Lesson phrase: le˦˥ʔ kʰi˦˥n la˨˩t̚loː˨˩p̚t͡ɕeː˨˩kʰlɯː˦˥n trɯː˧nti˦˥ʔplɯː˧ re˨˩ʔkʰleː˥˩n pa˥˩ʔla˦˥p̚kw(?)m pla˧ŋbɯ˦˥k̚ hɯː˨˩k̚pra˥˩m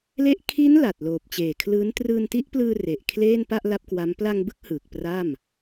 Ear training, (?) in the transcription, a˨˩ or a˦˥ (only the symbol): a˦˥